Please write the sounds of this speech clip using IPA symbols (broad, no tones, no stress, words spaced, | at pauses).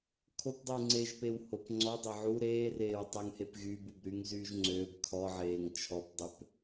kʰopdˤyː ŋ͡ǀeʒpew hop ŋ͡ǀɔdˤe ʕu ɾeːreːwtˤøŋhep ɣyːbubɾyːŋzyːʒ ŋ͡ǀøːb kʰɔʕeːŋ t͡ʃʰɔpdˤøp